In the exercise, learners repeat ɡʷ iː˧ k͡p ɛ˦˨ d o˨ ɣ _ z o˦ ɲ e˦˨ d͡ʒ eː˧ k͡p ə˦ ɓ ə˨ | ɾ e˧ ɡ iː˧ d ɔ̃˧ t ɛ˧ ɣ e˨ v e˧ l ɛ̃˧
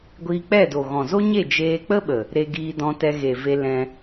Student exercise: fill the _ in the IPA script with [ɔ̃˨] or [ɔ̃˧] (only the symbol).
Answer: ɔ̃˨